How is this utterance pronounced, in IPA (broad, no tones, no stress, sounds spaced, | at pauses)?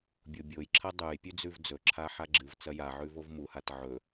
bʲ o bʲ o j ǁʰ ɐ dˤ ʉ j pʲ ʉ d͡z ʉ v d͡z ɵ ǁʰ a ħ a ɡ͡ǁ ɨ v t͡s ɐ j a ʕ ʉ v o v m u h a t ʕ ɵ